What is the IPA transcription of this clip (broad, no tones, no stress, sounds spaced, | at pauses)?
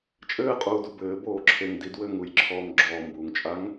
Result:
t͡ʃʼ ɘː qʼ uː d u b ɘː b oː ǁʰ e ŋ d i d w ɘː ŋ u j ǁʰ ɔː ŋ ɡ͡ǁ ɔː m b uː ŋ t͡ʃʼ a ŋ